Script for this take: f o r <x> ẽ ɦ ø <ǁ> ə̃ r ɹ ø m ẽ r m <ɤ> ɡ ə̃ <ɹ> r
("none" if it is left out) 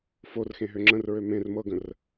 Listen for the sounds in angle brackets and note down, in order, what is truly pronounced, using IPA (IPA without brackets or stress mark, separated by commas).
x, ŋ͡ǁ, ɤ, none